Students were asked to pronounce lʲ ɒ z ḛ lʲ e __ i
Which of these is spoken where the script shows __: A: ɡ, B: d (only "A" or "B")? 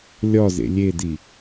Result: B